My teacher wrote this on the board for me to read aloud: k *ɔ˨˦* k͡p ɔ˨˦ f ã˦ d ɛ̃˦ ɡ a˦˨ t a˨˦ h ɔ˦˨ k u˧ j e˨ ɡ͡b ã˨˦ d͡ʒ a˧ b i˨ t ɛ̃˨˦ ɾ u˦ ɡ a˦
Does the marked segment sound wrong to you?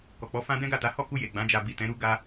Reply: yes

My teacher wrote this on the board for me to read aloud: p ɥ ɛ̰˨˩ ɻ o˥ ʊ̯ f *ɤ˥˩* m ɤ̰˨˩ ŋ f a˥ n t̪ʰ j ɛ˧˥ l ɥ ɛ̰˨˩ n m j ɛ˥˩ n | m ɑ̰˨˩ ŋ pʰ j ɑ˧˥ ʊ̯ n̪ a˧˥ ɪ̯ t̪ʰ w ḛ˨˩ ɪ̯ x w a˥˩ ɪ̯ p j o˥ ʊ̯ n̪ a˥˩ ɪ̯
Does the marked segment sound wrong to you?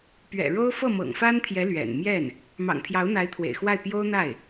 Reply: no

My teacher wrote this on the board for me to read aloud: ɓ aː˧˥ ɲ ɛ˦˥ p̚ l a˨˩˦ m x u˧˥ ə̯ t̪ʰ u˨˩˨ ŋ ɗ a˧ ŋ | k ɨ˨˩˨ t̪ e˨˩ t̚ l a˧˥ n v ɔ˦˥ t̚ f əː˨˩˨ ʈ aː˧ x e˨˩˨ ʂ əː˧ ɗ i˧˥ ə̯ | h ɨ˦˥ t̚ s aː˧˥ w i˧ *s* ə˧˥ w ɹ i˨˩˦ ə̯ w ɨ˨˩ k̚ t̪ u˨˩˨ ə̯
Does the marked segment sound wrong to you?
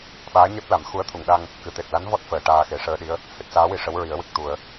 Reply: yes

